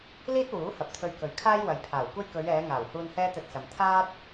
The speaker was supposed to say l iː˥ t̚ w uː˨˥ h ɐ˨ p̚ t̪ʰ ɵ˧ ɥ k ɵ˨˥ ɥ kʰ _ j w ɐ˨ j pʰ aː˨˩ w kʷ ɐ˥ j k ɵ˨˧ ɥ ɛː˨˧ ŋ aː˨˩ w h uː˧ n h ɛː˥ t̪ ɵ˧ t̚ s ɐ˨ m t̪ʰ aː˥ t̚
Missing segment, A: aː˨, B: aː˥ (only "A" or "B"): B